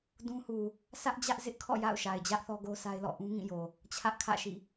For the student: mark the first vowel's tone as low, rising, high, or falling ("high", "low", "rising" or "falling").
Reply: high